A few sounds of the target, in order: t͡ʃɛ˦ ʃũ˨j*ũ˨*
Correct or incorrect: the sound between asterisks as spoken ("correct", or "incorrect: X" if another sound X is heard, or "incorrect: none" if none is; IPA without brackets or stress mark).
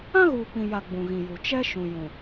correct